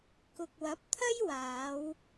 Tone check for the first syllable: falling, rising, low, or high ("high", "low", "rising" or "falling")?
low